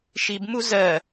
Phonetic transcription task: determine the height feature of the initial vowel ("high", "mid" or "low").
high